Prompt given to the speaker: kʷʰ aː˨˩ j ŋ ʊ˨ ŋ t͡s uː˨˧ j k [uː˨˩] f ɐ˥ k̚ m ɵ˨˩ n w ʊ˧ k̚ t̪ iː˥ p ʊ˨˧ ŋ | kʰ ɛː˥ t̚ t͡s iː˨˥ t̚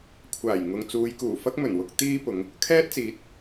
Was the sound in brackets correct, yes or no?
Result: yes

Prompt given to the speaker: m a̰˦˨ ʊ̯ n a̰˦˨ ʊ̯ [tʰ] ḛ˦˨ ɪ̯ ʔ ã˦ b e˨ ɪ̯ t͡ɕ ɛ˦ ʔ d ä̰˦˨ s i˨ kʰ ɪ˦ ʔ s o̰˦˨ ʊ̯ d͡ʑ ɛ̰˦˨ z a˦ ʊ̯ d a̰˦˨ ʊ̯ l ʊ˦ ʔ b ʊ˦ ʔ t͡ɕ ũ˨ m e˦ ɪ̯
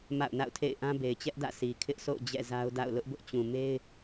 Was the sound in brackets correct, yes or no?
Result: yes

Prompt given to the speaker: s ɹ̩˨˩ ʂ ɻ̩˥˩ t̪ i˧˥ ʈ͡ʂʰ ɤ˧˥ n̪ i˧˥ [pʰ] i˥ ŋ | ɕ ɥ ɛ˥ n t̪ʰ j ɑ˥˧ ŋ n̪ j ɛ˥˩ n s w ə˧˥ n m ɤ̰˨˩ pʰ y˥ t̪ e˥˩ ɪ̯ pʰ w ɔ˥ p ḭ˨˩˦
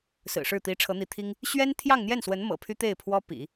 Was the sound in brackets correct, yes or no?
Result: no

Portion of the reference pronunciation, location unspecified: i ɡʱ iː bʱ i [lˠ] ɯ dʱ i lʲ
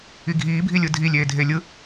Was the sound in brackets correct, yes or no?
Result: no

